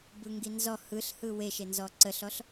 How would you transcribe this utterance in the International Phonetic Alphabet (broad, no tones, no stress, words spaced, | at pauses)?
bɯŋɡinzɔ hɯɬhɯ weʃenzɔ ǀəɬɔɬ